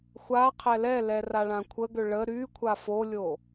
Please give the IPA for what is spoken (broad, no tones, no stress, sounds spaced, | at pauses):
xʷ a qʰ ɛ l ɛ l ɛ r a ɭ ã kʷʰ ə ɡ ø ɭ ə ɾ y kʷʰ a f o lʲ o